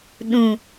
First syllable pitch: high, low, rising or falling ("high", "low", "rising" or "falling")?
low